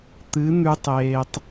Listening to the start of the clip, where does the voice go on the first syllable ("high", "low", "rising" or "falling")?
rising